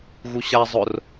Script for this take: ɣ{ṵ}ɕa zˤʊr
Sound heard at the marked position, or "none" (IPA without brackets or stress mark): u